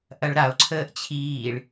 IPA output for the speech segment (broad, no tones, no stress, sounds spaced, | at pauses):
ʔ ɐ ɭ ɾ a o̯ ǀʰ əː ʔ t͡ɕʰ iː ɭ